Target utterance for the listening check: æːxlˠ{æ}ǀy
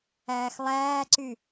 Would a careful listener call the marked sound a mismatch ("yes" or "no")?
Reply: yes